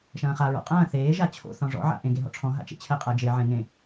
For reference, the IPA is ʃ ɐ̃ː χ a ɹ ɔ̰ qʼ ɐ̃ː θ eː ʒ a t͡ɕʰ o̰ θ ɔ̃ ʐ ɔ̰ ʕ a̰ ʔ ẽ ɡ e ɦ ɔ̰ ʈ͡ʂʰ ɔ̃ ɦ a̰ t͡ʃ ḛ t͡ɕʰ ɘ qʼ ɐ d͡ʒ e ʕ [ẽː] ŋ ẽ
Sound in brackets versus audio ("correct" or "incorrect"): incorrect